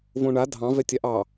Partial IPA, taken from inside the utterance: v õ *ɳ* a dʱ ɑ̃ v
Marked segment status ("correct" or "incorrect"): correct